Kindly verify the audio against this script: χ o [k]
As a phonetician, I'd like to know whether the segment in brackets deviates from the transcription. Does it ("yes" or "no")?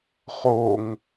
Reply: yes